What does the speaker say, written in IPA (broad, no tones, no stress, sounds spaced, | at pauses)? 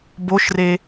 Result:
b o ʃ r e